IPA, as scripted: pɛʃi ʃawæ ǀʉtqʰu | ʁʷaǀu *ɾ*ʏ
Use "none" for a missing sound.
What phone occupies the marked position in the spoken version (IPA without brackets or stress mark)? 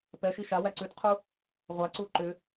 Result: ǃ